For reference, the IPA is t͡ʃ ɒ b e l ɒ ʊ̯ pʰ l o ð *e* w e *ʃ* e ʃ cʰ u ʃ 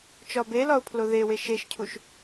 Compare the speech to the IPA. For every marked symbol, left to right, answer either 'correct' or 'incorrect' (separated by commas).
correct, correct